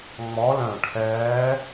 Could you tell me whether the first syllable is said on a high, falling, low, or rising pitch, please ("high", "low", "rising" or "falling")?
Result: rising